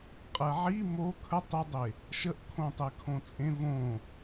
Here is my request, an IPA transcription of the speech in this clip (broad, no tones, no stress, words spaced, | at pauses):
qʼɛʕi mo kʰə tˤɪdˤe | ʃəʔkʰõ tˤekʰõt͡sʼẽ võ